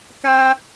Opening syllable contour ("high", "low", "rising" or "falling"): high